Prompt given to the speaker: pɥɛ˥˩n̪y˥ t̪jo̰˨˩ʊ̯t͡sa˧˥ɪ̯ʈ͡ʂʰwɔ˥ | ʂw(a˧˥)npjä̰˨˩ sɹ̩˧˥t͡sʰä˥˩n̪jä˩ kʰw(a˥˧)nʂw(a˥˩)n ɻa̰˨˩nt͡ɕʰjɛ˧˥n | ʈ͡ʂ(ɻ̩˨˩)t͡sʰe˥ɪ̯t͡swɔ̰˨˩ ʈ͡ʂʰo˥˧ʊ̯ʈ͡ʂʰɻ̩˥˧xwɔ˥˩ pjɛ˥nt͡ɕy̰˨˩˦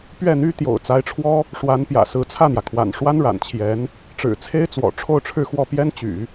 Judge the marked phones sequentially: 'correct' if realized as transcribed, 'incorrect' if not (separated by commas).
correct, incorrect, incorrect, correct